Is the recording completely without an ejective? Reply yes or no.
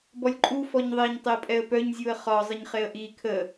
no